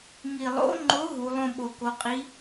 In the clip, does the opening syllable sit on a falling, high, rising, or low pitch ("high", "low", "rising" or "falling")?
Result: low